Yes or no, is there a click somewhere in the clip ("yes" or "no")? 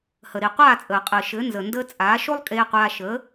no